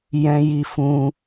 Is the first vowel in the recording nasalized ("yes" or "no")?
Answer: yes